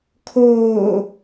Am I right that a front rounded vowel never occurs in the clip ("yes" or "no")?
yes